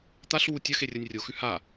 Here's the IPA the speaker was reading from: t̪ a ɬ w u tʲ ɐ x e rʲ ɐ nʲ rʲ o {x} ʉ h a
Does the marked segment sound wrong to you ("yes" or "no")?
no